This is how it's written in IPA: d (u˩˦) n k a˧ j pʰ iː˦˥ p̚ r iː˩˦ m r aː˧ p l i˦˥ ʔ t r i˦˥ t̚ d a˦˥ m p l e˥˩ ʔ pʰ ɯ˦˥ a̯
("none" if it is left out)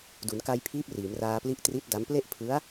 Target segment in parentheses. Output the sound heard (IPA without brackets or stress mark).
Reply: u˩˦